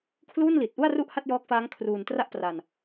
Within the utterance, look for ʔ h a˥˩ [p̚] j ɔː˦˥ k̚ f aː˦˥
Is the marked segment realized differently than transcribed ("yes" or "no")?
yes